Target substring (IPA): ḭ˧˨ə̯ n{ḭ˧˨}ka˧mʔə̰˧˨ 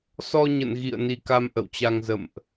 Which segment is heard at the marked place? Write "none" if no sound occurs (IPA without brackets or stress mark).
i˧